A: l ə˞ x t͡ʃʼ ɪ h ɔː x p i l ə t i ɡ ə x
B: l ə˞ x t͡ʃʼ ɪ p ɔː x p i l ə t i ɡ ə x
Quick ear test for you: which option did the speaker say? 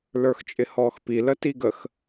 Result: A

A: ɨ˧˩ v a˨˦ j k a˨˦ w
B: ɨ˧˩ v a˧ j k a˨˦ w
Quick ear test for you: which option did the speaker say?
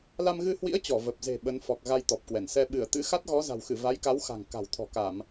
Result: A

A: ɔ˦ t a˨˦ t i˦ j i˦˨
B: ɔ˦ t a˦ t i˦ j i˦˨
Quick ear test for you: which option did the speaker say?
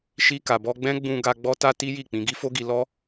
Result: B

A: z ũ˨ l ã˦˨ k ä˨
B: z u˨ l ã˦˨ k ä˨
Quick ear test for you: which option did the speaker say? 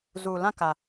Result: B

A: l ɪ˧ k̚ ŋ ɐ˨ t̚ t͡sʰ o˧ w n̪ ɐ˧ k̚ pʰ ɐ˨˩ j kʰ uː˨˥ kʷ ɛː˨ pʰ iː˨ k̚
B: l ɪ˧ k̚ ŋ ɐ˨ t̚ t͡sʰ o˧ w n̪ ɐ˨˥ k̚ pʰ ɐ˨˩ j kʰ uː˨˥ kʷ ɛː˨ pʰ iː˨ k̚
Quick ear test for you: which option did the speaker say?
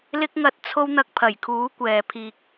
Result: A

